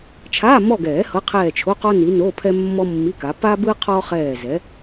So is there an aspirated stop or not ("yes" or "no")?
yes